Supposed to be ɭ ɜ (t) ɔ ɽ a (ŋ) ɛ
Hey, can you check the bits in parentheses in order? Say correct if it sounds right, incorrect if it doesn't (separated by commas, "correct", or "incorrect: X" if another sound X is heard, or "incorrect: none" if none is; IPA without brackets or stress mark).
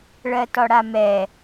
correct, incorrect: m